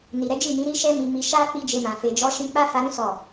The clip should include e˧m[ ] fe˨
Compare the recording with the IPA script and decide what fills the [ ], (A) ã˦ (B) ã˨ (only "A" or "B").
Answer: B